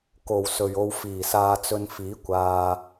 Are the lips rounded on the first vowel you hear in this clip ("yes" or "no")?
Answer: yes